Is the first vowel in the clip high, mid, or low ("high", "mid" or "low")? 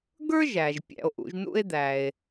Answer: mid